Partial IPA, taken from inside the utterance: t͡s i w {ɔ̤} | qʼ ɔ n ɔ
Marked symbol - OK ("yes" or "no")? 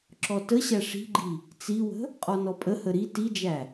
no